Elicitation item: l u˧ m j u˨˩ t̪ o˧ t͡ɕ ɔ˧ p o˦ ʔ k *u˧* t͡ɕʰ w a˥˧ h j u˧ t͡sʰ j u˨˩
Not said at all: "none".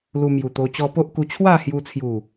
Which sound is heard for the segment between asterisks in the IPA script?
u˧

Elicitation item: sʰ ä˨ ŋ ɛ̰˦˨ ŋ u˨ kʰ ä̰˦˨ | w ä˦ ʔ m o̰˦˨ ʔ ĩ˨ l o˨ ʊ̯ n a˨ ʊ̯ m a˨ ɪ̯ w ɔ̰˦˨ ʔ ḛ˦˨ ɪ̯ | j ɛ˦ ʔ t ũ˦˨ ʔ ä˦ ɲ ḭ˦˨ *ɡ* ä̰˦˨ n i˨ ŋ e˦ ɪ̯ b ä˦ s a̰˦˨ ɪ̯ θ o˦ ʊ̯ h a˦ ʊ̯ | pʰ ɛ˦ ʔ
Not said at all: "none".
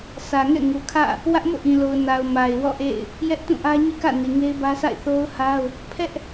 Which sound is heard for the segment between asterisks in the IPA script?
k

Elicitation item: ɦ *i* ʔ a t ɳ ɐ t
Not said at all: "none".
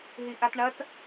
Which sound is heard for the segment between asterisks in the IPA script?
i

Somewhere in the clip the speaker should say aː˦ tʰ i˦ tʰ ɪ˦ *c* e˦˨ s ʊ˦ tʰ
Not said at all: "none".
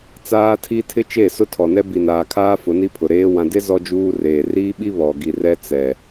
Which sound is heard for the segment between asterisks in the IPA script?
t͡ʃ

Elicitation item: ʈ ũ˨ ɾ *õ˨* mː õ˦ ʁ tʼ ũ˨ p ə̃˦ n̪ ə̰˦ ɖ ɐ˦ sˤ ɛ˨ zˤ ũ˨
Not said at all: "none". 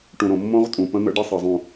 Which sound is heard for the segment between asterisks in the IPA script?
õ˨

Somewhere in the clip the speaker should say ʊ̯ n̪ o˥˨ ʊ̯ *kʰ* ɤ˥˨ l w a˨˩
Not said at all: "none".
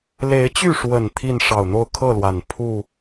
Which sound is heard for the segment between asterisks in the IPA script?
kʰ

